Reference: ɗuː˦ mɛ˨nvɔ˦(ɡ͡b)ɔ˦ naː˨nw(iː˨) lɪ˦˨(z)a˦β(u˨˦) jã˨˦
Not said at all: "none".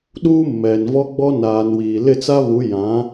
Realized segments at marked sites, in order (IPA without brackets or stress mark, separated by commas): ɡ͡b, iː˨, t͡s, u˨˦